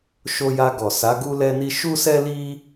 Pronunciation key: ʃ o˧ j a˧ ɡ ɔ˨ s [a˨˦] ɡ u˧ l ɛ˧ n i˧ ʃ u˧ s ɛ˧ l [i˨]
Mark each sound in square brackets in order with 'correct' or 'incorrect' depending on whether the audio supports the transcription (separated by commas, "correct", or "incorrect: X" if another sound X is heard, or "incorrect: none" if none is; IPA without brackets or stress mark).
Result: correct, incorrect: i˧